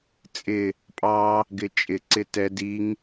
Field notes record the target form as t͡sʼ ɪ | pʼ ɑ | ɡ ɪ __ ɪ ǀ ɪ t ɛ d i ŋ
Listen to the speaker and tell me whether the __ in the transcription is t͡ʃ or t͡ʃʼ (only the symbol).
t͡ʃʼ